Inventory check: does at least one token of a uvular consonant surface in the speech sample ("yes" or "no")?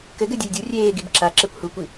no